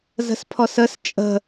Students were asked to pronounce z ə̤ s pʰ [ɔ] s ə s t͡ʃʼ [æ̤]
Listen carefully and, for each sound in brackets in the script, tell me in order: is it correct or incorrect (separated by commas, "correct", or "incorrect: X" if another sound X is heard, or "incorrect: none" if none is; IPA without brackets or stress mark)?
correct, incorrect: ə̤